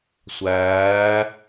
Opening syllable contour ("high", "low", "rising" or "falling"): rising